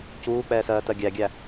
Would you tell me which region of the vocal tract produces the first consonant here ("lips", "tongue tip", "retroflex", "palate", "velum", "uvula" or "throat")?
palate